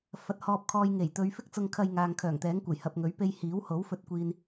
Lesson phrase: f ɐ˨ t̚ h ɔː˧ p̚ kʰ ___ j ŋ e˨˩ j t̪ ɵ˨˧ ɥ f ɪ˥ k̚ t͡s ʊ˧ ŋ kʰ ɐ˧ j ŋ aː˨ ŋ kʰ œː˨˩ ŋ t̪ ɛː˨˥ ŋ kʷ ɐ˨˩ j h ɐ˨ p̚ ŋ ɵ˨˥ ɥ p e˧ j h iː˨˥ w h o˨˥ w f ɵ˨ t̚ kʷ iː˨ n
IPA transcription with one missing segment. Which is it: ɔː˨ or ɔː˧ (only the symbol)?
ɔː˧